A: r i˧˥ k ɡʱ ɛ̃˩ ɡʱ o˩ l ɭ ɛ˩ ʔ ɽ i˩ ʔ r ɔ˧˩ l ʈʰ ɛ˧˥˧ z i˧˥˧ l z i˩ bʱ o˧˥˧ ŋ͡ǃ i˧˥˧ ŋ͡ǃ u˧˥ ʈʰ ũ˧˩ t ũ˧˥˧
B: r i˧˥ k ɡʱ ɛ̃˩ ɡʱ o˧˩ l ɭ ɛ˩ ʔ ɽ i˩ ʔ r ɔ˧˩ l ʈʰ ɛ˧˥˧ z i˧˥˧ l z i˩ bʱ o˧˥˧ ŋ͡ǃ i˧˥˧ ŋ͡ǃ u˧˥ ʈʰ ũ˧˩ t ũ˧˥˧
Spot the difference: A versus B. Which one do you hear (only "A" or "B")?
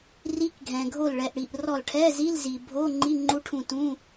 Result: B